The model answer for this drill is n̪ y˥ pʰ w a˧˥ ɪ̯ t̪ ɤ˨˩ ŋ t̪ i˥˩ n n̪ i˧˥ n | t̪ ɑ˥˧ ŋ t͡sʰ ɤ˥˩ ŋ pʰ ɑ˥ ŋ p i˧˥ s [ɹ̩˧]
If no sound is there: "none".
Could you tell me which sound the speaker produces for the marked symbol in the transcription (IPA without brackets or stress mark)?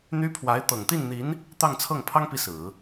ɹ̩˨˩˦